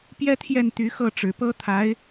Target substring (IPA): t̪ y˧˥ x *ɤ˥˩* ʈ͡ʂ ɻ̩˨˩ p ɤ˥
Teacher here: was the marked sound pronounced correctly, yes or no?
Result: yes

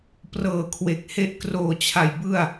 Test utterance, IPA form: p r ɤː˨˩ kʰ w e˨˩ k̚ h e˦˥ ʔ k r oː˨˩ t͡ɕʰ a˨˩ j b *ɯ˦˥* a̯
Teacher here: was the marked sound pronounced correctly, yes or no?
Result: no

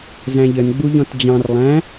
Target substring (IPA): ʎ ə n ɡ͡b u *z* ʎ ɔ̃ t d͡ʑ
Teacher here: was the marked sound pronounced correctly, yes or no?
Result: no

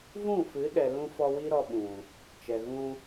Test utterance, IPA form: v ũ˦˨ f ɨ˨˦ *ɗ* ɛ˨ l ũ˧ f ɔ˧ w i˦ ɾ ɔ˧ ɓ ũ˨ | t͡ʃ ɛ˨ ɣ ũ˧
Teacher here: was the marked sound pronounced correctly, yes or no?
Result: yes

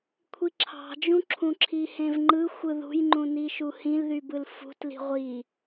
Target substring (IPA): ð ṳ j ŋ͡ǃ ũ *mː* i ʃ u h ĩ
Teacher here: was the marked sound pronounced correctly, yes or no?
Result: no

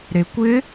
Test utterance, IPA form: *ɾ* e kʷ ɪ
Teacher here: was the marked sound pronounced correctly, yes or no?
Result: yes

